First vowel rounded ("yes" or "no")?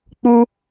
yes